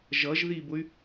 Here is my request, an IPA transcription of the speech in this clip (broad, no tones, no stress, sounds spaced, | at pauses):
ʒ ʌ ʒ ð i b ʊ y̯